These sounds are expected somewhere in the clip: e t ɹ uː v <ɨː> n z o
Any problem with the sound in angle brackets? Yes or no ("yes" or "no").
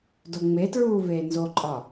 yes